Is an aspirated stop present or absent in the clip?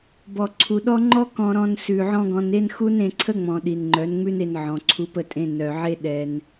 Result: present